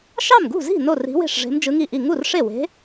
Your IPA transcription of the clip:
ʃ ɑ˥˩ m ɡ ṳ˥˩ z i̤˥˩ n o˥˩ r i̤˧˥ w e̤˥˩ ʂ ʐ e̤˧˥ m d͡ʒ ɯ˧˥ ŋ i˥˩ ʔ i˥˩ ŋ u˥˩ r ʂ e˥˩ w e̤˧˥

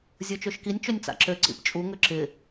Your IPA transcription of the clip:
zʲ ə˞ t͡ʃ ø ʃ k i nʲ t͡ʃ ø nʲ t͡s a̰ ǁ ø ǀ ḭ p t͡ʃʼ u ŋ ø ǁ ɪ

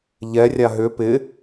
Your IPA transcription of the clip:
ʎ ɛ rʲ a ɦ ʏ p ɪ

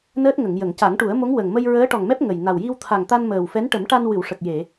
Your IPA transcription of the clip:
n əː˦˥ t̚ ŋ ə˨˩˨ ŋ j ə˨˩˨ ŋ c a˨˩˦ ŋ ʈ u˨˩˦ ə̯ m o˧˥ ŋ w ə˨˩ ŋ m ə˧ j ɹ əː˧˥ ʈ ɔ˨˩ ŋ m ɛ˦˥ p̚ ŋ ə˨˩ j n a˨˩ w j i˧ w t̪ʰ a˨˩ ŋ t̪ a˧ n m əː˨˩ w f ɛ˧˥ n ʈ ə˨˩˦ m ʈ a˧ n w ɨ˨˩˨ w ʂ ə˨˩ k̚ j e˨˩˨

